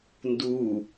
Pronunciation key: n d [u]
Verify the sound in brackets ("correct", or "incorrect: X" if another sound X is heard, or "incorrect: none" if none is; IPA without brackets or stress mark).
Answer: correct